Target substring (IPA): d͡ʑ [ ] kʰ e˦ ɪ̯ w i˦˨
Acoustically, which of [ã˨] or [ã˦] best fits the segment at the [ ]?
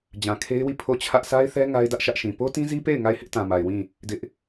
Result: ã˨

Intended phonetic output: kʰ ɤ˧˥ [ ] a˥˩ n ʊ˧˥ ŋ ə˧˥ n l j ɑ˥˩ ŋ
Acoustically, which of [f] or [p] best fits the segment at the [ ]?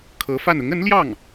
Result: f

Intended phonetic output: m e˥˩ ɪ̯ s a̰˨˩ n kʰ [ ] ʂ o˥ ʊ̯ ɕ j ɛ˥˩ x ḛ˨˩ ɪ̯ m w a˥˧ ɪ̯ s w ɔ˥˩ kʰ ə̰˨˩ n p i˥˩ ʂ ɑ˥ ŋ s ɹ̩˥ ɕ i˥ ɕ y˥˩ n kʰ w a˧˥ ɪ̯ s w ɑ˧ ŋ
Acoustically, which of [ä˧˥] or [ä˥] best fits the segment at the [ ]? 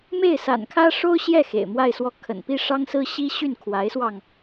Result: ä˥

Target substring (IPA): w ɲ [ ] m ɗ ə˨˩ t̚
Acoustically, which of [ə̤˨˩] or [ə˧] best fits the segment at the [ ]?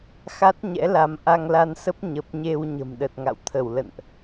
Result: ə̤˨˩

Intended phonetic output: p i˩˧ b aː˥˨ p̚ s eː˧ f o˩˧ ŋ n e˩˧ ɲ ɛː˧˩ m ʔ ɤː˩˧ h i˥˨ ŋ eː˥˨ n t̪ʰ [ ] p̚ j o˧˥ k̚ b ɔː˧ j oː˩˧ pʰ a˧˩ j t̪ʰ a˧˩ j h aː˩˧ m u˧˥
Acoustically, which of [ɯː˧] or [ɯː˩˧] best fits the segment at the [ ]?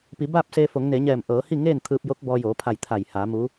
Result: ɯː˧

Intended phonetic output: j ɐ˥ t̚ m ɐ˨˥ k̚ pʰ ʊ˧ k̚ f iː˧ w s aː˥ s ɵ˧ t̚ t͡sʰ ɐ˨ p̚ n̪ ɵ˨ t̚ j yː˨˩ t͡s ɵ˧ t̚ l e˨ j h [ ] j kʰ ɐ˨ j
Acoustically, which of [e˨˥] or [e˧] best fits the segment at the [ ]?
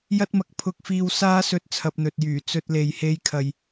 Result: e˧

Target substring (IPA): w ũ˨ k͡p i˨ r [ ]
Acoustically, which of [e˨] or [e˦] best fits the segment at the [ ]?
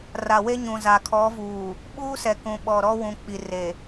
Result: e˨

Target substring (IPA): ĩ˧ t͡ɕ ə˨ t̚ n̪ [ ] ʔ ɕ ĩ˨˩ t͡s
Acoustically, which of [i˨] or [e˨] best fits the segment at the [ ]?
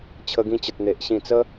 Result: e˨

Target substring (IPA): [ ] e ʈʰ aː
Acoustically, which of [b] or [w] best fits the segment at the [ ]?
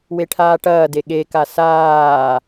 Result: w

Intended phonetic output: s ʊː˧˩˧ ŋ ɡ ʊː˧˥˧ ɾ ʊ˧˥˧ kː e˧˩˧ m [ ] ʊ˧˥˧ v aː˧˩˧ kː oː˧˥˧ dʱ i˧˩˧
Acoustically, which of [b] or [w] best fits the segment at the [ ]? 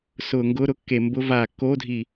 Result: b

